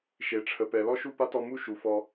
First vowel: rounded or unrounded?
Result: unrounded